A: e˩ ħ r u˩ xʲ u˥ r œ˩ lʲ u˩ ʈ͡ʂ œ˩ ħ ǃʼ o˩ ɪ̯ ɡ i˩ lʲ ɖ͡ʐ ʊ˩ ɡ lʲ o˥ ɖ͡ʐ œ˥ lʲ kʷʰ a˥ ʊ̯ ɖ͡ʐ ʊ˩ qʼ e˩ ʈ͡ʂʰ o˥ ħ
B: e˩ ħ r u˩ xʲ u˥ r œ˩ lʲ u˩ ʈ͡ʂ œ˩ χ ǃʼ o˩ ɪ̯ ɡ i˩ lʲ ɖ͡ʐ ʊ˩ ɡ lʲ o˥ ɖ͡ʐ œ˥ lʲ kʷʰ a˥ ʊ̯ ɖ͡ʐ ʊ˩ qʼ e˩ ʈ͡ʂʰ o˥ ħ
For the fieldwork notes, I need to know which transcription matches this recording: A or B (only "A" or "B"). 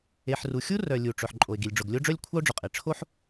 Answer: A